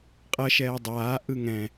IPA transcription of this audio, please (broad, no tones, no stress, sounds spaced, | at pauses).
qʼ ʌ ʃ ɛː dˤ aː ʔ ɯ ŋ ɛ̃